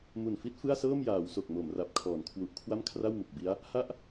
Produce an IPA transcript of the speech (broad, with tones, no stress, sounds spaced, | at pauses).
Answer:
m u˨˩ n f i˦˥ t̚ f ɯ˥˩ a̯ s ɤː˥˩ m j aː˩˦ w s o˨˩ k̚ m o˩˦ m r a˨˩ p̚ kʰ ɔː˩˦ n kʰ w u˨˩ ʔ kʰ w a˥˩ m kʰ r a˥˩ w m u˨˩ k̚ b i˦˥ a̯ | h a˥˩ ʔ